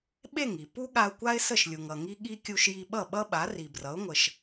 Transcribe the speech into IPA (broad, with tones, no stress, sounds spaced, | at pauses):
ɓ e˥˩ ŋ i˩ p u˥ ɠ a˧ ʊ̯ kʷ a˥ ɪ̯ s ə˥˩ ʃ lʲ u˩ ŋ ʌ˩ ŋ i˥ ɠ i˥ kʲ u˧ ʃ j i˧ ɓ ʌ˥˩ ɓ ʌ˥ ɓ a˩˥ r i˩ b r ʌ˩˥ ʊ̯ ŋʷ ə˩ ʃ